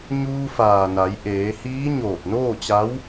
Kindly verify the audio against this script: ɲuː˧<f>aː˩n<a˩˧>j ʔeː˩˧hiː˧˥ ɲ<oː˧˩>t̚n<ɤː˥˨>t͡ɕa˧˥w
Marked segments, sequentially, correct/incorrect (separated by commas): correct, correct, correct, incorrect